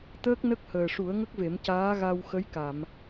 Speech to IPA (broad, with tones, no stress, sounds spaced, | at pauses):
t̪ əː˦˥ k̚ n ə˦˥ k̚ h əː˨˩ ʂ u˨˩˦ ə̯ ŋ ə˦˥ k̚ v e˨˩˦ m c aː˧˥ ɣ a˧ w x ə˧˥ j k a˨˩˨ m